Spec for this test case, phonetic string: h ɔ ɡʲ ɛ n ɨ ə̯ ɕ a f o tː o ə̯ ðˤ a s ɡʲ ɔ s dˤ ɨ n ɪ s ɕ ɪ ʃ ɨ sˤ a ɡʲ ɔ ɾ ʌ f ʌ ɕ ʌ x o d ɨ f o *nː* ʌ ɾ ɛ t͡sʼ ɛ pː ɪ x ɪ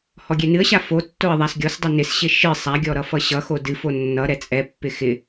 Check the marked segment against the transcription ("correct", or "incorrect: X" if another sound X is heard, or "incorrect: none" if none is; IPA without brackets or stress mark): correct